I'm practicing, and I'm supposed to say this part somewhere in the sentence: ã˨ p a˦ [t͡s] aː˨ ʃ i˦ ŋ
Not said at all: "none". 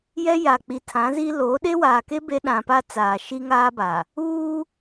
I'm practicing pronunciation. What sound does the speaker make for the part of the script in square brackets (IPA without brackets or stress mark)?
t͡s